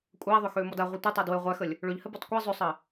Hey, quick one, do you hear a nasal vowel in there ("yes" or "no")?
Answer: no